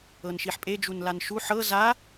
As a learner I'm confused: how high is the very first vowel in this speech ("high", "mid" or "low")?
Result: mid